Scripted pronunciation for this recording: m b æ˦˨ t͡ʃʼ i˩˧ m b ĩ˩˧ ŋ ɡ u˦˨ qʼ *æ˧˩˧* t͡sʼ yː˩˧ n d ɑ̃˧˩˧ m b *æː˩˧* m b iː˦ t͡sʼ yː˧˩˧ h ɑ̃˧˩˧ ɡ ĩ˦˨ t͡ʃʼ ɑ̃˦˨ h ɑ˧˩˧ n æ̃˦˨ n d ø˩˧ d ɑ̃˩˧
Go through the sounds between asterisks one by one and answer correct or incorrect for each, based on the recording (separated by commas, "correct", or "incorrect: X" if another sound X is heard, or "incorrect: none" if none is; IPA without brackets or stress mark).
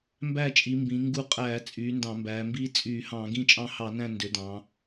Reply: incorrect: æː˧˩˧, correct